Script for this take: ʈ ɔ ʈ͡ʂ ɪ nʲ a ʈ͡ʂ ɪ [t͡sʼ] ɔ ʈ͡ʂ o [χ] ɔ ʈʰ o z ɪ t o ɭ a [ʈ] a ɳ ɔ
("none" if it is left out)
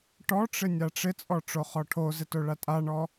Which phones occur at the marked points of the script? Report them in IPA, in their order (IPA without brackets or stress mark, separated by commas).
t͡sʼ, χ, tʼ